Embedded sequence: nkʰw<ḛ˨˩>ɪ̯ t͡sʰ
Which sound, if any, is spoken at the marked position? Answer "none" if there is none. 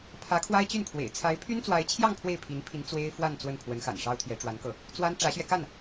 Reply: ḛ˨˩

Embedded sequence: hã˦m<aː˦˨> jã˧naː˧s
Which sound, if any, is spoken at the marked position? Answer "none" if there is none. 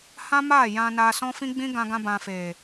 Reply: aː˦˨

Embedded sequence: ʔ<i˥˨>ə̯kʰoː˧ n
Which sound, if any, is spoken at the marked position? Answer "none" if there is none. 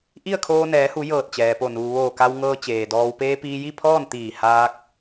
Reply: i˥˨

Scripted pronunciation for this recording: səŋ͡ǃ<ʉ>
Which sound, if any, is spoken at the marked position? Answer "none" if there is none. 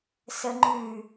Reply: ʉ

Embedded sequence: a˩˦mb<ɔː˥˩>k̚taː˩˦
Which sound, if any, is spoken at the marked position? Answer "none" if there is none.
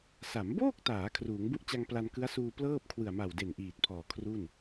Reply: oː˥˩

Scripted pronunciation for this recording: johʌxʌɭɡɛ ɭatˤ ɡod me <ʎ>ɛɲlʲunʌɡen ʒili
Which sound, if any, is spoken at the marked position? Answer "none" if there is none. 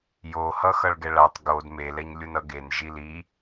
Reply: l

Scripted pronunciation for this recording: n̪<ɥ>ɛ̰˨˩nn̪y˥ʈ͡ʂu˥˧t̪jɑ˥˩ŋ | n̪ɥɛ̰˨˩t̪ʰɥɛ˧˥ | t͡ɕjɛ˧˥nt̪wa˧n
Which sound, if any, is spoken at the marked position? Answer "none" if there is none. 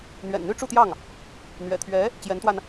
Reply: ɥ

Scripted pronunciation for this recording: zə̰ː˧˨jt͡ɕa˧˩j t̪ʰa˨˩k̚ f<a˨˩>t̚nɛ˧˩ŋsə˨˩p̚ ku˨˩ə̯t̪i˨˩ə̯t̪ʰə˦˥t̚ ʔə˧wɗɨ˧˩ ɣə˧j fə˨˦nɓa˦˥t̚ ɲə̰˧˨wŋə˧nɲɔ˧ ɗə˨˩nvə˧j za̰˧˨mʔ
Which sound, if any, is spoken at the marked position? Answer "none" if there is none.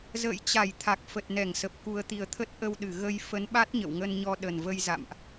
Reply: ə˨˩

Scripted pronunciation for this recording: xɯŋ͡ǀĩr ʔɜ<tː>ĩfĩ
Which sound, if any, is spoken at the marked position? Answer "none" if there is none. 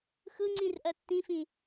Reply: tː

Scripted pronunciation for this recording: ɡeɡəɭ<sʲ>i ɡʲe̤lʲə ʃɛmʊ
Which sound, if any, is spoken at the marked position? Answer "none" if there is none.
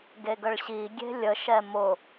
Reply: ɕ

